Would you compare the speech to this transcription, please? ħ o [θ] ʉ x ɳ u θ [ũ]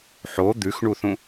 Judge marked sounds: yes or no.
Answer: no, yes

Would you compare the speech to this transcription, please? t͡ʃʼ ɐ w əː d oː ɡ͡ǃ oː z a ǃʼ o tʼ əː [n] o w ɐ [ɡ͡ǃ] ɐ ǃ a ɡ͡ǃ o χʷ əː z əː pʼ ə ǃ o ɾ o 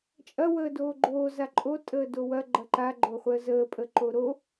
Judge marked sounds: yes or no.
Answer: no, yes

